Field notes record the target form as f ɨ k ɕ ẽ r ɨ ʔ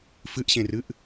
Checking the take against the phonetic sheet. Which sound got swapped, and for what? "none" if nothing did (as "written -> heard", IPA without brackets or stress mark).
k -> ʔ